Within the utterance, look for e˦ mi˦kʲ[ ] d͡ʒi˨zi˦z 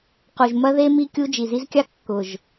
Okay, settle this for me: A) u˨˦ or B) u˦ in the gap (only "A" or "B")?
B